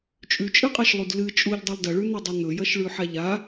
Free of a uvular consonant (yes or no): no